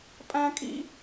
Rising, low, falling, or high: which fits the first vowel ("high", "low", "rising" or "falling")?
high